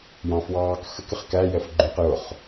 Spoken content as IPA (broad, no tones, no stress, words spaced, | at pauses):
jɑ̃fwɑːk xək ɪχkæ jɛfɡ͡ǃũq jʊχ